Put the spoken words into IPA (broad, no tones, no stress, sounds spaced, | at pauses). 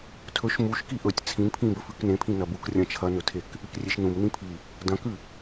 tʰ ɵ ʃ m u ʃ k i ʔ ɵ tʲ t͡sʰ ĩ n pʰ ĩ b ɵ f ʉ k n ẽ pʰ ĩ n ɐ b u k rʲ ɐ̃ t͡ʃʰ ɐ n ɵ tʰ e k | ɨ k rʲ e ʃ n ũ m n ĩ pʰ i | d ɐ̃ k ʉ